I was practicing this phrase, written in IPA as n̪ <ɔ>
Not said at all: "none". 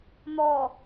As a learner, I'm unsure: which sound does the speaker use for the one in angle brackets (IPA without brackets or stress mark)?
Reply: ɔ